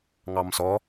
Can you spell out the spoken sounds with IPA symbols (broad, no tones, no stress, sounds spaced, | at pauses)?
ŋ ɑ m s ɔ